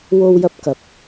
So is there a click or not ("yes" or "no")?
no